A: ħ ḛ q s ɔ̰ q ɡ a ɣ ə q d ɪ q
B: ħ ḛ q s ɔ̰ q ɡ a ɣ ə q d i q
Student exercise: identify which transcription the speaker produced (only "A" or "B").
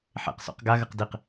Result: B